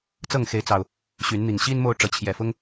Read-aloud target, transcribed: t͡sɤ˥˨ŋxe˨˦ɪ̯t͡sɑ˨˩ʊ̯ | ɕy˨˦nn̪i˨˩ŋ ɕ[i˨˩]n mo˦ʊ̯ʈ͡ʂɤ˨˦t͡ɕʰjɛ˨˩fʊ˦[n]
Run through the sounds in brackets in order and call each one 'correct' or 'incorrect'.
incorrect, incorrect

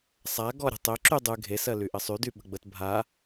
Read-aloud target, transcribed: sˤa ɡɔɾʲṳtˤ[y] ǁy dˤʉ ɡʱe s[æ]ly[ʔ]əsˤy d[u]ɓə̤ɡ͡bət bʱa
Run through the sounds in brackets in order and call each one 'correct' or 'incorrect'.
incorrect, incorrect, correct, incorrect

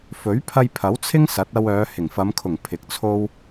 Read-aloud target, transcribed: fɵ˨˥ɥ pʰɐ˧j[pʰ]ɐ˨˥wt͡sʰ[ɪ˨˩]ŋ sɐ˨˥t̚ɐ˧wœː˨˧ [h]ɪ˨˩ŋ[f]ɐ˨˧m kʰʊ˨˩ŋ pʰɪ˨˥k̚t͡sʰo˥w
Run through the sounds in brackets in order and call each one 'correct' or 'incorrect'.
correct, incorrect, correct, correct

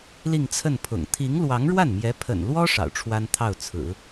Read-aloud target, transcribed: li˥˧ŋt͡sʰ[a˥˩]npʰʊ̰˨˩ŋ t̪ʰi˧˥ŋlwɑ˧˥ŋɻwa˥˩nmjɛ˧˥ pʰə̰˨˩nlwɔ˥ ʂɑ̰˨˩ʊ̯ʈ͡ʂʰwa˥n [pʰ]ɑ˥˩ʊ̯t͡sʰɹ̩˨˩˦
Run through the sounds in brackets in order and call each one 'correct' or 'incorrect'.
incorrect, incorrect

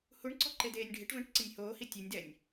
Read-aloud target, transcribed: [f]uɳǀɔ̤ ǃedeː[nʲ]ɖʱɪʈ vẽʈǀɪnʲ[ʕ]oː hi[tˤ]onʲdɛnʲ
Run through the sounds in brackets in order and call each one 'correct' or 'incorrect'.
incorrect, correct, incorrect, incorrect

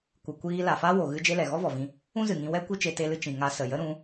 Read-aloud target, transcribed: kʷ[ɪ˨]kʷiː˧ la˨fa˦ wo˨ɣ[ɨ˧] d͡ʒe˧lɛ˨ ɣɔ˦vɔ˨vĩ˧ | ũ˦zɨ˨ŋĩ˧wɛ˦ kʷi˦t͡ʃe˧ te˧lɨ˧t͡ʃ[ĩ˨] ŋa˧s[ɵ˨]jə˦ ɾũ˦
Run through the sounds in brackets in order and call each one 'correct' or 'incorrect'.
incorrect, correct, correct, incorrect

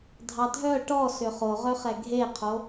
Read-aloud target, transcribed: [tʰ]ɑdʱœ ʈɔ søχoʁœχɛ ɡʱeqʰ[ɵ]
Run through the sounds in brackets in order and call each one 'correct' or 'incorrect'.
incorrect, incorrect

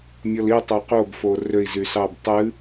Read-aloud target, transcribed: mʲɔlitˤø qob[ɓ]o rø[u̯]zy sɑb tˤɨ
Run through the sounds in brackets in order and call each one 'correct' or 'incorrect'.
incorrect, incorrect

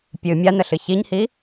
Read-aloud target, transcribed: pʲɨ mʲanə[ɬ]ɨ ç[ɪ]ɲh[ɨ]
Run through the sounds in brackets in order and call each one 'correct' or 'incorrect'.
correct, incorrect, incorrect

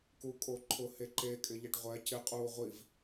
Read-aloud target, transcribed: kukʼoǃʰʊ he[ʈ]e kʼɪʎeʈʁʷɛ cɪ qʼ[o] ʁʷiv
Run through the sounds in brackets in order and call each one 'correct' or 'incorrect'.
incorrect, incorrect

